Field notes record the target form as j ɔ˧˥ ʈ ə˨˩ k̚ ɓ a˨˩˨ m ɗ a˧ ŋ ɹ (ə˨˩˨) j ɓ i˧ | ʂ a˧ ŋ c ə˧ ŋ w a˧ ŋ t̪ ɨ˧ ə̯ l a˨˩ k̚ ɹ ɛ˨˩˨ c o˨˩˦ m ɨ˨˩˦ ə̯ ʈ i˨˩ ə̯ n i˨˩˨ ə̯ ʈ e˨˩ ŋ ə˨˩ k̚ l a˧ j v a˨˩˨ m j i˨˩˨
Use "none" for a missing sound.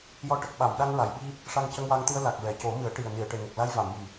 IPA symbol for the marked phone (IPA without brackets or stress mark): a˨˩˨